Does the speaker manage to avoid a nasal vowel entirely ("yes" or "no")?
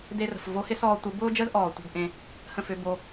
no